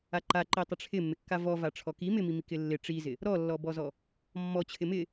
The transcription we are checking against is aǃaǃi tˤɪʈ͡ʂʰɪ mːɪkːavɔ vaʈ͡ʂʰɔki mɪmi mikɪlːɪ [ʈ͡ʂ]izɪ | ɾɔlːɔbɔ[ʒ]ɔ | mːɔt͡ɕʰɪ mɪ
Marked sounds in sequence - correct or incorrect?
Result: correct, incorrect: z

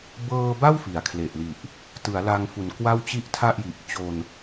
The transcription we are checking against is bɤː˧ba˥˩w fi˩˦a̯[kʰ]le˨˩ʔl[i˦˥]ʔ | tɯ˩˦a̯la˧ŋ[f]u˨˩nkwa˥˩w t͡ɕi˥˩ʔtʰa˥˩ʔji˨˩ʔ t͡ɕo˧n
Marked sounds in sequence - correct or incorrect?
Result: correct, incorrect: i˨˩, correct

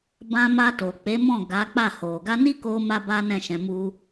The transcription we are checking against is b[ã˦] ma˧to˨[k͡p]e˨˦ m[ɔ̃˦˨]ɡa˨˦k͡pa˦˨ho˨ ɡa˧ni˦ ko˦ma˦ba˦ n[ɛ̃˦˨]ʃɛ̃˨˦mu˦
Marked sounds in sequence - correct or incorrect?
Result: correct, correct, correct, correct

